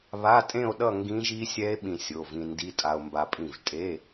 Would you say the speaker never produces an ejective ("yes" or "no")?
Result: no